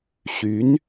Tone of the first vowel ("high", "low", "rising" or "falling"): rising